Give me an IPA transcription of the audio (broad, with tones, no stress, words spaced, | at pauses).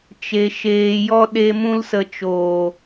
t͡ʃe˧ ʃeː˧jɔ˦ ɗe˦ mũ˦lsə˧ t͡ʃoː˨